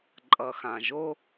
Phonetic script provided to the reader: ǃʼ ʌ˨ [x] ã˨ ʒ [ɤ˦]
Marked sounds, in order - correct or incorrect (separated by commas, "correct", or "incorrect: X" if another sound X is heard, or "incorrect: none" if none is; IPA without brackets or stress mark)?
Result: correct, incorrect: o˦